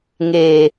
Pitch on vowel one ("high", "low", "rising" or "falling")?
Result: low